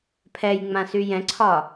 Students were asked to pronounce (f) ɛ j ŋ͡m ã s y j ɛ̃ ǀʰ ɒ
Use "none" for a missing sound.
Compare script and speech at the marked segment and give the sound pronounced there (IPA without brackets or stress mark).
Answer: pʰ